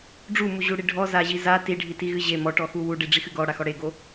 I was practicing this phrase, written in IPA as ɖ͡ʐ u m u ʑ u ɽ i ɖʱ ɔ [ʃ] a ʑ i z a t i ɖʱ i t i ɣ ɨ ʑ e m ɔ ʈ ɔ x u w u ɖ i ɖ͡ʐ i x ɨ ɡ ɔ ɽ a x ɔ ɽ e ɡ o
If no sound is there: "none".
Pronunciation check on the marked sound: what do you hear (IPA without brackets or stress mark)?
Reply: z